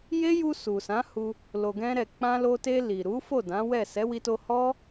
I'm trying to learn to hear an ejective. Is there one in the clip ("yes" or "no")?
no